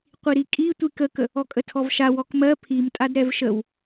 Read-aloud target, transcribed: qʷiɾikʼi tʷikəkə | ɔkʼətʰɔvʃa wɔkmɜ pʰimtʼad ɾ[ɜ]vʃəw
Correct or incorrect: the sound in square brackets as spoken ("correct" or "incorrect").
incorrect